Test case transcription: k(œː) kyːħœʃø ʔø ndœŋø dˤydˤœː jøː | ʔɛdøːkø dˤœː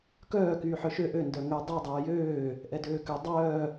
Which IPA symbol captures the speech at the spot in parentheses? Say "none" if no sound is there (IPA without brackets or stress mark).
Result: œː